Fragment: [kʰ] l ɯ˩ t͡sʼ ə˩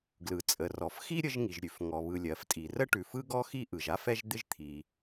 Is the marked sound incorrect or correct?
incorrect